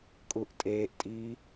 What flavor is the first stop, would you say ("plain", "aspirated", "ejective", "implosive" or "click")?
ejective